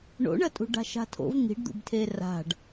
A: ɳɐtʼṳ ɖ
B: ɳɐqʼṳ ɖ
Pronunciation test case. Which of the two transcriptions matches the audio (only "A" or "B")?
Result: A